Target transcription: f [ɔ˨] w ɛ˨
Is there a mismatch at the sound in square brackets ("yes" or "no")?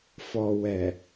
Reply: no